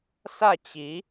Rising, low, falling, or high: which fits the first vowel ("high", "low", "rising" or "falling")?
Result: falling